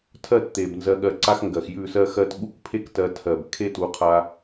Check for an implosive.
present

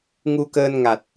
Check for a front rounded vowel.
absent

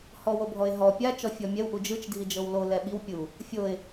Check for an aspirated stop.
absent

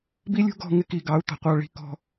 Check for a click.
absent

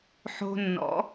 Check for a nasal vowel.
absent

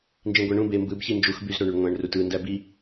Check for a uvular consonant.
absent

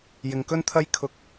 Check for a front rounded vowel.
absent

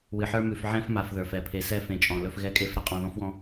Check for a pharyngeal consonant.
present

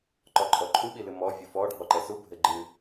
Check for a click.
present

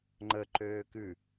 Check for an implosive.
absent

